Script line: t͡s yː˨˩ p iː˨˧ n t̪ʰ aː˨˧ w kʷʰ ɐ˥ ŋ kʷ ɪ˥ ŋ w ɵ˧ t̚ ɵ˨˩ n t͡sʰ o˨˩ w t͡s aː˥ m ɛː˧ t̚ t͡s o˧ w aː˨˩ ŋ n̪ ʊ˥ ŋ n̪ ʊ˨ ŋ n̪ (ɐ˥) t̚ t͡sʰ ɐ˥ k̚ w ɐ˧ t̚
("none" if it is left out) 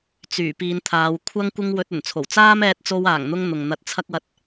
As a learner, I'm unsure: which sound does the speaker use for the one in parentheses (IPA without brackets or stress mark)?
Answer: ɐ˧